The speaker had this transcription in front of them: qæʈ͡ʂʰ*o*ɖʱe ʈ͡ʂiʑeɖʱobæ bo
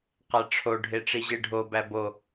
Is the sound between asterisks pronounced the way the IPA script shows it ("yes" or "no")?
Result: yes